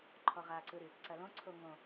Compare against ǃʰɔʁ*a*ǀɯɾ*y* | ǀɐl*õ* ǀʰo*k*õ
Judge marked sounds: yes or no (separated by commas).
yes, yes, yes, no